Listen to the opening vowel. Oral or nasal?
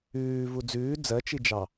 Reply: oral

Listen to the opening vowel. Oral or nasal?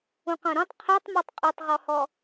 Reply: nasal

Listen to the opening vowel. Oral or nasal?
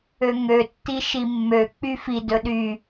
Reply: oral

